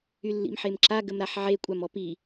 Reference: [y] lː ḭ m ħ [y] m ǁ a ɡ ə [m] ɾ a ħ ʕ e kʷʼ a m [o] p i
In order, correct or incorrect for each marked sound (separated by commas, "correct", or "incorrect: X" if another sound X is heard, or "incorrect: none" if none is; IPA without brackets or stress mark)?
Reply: correct, incorrect: e, correct, incorrect: ɔ